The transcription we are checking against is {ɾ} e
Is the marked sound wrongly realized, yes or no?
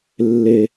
yes